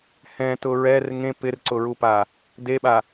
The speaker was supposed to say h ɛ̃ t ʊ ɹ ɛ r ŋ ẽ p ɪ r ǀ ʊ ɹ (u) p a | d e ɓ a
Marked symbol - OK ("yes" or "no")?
yes